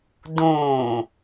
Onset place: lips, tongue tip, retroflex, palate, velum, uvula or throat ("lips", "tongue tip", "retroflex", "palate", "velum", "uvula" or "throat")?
tongue tip